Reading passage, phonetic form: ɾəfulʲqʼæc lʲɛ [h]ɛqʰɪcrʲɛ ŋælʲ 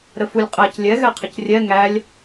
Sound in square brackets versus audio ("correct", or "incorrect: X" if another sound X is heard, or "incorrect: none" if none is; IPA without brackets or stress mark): incorrect: ɣ